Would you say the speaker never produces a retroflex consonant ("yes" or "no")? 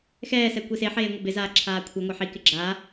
yes